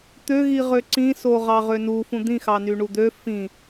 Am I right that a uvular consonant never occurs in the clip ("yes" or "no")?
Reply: no